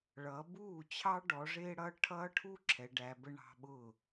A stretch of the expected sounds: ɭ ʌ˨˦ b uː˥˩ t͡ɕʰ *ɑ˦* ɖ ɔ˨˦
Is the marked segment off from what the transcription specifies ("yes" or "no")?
no